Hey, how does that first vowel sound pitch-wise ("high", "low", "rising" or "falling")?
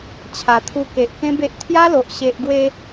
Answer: low